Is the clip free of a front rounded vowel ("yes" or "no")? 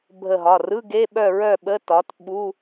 no